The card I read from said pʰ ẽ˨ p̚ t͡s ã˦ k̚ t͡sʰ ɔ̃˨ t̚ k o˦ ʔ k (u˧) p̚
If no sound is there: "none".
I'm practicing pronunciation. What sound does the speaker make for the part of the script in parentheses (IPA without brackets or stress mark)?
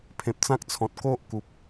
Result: u˨